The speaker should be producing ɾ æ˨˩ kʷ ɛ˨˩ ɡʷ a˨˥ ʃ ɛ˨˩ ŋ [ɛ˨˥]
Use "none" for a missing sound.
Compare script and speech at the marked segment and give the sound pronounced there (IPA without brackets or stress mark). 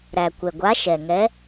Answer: ɛ˨˥